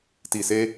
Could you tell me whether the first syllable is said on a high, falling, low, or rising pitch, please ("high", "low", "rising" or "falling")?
low